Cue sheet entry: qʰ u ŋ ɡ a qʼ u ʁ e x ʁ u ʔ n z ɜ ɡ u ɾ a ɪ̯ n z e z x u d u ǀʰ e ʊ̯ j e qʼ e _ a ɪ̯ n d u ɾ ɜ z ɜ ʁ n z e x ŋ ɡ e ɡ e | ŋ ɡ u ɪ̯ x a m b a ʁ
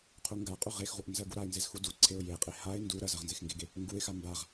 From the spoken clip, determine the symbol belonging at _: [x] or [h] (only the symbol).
h